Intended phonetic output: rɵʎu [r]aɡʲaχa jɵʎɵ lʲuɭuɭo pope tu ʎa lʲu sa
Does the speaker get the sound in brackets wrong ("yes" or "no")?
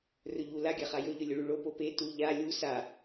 yes